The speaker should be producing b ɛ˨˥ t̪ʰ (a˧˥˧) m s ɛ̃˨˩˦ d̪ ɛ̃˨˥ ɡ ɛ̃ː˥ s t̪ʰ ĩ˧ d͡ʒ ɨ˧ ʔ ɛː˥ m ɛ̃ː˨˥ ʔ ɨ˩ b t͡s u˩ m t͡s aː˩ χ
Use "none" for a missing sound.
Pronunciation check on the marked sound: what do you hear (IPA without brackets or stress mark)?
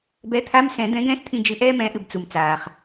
a˧˥˧